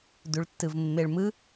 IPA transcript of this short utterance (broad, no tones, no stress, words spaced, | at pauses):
duɭtːɯvmːeɭmɯ